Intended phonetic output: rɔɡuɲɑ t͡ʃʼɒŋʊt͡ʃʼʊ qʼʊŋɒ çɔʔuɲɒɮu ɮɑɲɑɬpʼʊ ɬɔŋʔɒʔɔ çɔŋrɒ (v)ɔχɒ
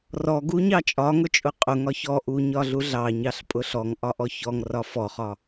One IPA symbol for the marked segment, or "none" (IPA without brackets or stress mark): f